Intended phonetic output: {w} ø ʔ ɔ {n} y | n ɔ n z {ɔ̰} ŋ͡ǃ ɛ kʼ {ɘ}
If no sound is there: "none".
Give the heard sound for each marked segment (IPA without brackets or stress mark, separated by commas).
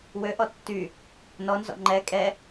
w, tː, ɔ̰, ɛ